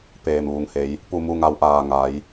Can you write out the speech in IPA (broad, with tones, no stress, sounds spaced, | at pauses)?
p eː˧˩ m ʋ u˩ ŋ h e˩˧ j | p u˥˨ m u˥˨ ŋ a˧ w ʔ aː˧˩ ŋ a˩˧ j